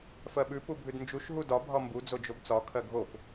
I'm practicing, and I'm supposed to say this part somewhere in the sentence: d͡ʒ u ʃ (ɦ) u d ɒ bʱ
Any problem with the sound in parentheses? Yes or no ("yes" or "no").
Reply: no